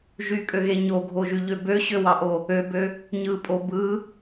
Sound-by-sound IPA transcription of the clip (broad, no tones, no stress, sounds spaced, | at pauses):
ʒ y kʼ ø ɣ e ɲ o ɡʱ o ʒ y ʎ ø b ø ɕ ø w ɑ ʔ o | ø b ø | ɲ ɯ pʼ o b ɯ